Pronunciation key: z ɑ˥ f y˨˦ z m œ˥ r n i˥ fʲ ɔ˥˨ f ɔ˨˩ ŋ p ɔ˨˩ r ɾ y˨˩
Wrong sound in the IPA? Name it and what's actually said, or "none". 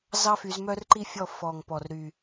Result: n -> ǃ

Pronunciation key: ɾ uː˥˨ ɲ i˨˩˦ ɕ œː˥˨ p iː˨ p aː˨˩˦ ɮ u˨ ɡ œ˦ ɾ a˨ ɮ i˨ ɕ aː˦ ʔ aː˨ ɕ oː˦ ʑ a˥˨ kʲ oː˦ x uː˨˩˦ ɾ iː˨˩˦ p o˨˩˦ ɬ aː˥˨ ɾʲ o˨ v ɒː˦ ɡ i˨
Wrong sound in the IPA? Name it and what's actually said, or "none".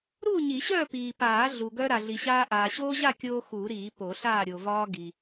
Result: none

